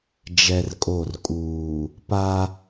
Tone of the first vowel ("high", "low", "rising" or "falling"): high